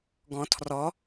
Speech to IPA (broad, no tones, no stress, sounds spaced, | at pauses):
ɡ ɔ̃ tʰ r ɔ